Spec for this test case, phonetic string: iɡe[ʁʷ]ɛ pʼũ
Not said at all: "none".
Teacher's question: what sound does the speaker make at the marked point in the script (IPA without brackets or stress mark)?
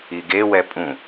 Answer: w